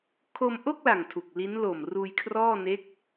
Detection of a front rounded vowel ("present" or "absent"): absent